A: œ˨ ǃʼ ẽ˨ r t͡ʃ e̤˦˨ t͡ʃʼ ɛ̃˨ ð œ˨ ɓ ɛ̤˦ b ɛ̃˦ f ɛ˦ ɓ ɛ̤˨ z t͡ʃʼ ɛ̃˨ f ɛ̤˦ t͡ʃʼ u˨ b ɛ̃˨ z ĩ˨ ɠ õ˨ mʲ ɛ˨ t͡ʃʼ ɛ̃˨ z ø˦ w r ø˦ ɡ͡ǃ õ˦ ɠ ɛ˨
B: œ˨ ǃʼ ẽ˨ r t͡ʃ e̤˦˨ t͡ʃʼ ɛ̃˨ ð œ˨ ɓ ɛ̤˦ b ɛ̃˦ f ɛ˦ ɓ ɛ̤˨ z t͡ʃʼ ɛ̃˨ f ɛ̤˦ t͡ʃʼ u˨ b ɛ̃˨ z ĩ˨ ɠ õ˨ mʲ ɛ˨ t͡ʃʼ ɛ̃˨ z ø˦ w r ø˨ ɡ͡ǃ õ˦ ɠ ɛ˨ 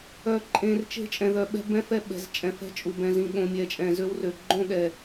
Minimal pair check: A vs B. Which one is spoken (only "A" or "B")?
B